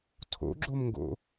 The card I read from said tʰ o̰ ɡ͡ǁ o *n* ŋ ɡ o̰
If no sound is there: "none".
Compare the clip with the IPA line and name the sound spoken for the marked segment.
m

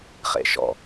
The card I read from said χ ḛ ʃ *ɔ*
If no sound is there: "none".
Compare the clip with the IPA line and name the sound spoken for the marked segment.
ɔ̰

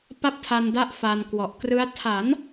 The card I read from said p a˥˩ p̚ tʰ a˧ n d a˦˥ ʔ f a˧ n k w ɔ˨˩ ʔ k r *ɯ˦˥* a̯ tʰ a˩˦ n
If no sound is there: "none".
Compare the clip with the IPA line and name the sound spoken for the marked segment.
ɯ˦˥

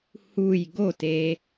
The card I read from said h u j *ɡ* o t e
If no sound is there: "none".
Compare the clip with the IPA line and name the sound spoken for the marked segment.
ɡ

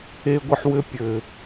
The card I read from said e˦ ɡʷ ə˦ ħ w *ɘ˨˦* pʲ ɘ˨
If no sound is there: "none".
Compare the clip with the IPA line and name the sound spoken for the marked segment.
ɘ˦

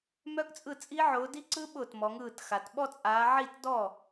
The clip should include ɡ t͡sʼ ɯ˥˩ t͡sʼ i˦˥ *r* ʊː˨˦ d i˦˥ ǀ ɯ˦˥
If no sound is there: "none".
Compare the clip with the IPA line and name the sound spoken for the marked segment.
ʕ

